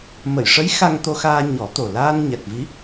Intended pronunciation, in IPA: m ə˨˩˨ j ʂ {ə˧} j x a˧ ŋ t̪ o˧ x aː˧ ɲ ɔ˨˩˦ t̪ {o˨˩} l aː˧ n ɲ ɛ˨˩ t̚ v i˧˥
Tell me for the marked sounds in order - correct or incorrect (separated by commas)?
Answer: incorrect, correct